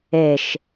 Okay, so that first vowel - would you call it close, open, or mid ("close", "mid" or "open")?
mid